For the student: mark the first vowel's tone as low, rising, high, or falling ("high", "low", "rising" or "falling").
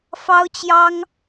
high